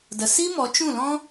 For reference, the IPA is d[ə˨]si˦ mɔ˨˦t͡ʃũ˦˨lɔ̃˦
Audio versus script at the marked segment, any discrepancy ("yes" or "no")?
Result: no